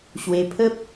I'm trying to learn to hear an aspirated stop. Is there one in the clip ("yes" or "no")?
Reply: yes